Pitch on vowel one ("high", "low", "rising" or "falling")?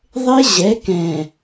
high